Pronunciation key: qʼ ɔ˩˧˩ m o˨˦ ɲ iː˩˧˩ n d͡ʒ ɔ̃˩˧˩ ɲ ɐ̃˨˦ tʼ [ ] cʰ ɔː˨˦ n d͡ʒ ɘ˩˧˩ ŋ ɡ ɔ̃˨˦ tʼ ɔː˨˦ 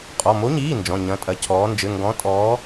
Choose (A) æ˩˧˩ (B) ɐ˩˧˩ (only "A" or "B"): B